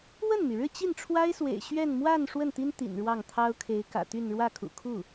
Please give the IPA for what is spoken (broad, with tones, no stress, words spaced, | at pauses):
wə˥˩nmy˩ɻɻ̩˥˧ t͡ɕi˥˩nʈ͡ʂʰwa˥ɪ̯swḛ˨˩ɪ̯ ɕɥɛ˥˧n mwa˥˧n ʂwə˥˩nt̪i˥n t̪ḭ˨˩nɻwɑ˥˩ŋ t̪ʰɑ˥ʊ̯kʰe˧˥ɪ̯kä̰˨˩t̪y˥˧n ɻwä˥˩kʰṵ˨˩kʰu˥˩